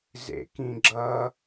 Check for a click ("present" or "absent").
present